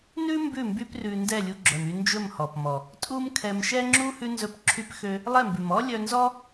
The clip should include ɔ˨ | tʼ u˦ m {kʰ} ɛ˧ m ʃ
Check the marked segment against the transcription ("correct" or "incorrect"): correct